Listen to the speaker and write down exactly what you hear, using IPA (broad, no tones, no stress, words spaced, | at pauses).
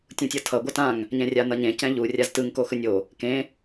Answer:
tʲũtʲʌtʰʌ ɡʷʌtãŋ | ɲɛ̃rʲanʌɲẽ cɛ̃ʎu rʲaztɯŋ koxɯnʲo | kẽ